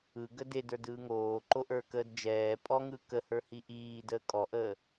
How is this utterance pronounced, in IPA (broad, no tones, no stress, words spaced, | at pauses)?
ɯ ɡədedə˞d ɯːŋoːǃoʔə˞ kəːdd͡ʒɛː pʼɔŋɯ kəhə˞ hiʔiːdəː kʼɔʔəː